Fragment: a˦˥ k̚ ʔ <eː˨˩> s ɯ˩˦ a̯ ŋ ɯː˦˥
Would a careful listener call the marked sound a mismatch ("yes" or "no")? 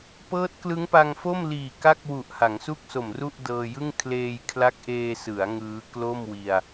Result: yes